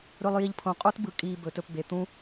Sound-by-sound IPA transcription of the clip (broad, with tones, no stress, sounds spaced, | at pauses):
ɾ ɵ˧ lˠ j i˧ ʎ pʰ õ˨ qʼ o˦ t b ɯ˨ kʼ iː˧ b ɵ˨˦ t ɵ˧ p b e˨ t̪ ũ˦